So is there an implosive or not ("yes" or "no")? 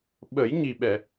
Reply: yes